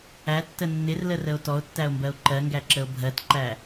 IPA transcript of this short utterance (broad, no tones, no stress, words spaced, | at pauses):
ætːə nːɪrlərəo̯ tɔo̯tːæo̯mbɜo̯ ǃɜŋɡæǁəo̯ bʱɜtǃæ